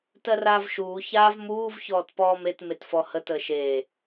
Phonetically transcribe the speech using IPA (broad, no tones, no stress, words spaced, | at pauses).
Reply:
tɜraːvʃuː çaːvmuːv çɔːtpɔːmet metfɔhə təːʃeː